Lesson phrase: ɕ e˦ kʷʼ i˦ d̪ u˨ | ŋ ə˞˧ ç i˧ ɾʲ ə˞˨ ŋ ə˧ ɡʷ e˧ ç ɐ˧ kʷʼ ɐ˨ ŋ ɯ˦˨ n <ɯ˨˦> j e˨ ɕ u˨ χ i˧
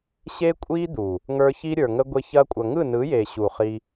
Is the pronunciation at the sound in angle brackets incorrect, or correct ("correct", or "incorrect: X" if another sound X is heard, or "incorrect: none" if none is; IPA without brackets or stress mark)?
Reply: correct